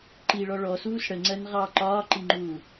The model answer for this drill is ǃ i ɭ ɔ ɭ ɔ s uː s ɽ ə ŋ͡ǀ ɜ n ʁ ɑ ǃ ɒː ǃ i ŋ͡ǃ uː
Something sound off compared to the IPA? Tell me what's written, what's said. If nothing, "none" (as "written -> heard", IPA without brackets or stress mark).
none